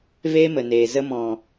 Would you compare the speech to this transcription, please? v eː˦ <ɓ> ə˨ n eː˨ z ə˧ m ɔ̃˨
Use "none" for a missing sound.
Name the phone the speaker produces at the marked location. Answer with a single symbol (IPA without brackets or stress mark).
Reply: m